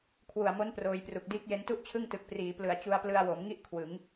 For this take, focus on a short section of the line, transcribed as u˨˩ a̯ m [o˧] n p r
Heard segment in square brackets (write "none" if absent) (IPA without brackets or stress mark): o˦˥